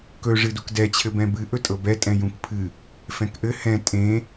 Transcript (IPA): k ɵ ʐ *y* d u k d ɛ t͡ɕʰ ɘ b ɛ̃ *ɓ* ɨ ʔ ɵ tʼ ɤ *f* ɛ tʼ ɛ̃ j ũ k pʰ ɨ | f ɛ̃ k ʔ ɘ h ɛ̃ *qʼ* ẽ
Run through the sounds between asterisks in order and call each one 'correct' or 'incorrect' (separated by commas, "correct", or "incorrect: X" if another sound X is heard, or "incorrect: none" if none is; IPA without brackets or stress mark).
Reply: incorrect: ɨ, incorrect: b, incorrect: b, incorrect: tʼ